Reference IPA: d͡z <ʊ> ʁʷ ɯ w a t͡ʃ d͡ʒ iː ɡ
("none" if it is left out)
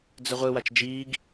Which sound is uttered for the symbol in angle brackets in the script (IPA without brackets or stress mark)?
ə